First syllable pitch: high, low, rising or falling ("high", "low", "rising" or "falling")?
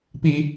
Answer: high